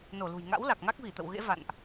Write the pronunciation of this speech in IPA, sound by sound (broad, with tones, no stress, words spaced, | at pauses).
no˧˩lṳ˨˩j ŋa̰˧˥wla˨˩k̚ŋa˦˥k̚vi˧˩ t̪ə̰˧˨wɣḛ˧˥ va̰˧˨nʔ